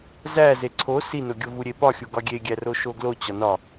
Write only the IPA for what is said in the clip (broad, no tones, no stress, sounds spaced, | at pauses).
z æ z e ǀʰ o s i n o ɡʲ o v u ɾʲ e p ɒ xʲ u ɡ ɒ ɡʲ e ɡʲ æ r o ʃ o ɡ l o t͡ɕ ɒ n ɒ